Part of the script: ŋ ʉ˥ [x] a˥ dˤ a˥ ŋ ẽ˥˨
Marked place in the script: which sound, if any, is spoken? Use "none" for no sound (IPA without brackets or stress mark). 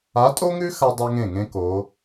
x